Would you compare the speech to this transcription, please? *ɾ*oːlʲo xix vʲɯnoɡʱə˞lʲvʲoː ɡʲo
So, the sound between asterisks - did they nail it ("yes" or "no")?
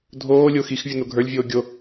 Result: no